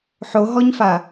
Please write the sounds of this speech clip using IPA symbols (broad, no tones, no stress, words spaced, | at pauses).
ħoɦɔɲfa